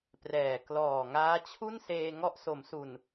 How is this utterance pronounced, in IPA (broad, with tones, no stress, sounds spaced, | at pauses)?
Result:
p r ɛː˨˩ k l ɔː˨˩ ŋ aː˦˥ t͡ɕʰ u˥˩ n s eː˧ ŋ ɔ˦˥ ʔ s o˩˦ m s u˨˩ n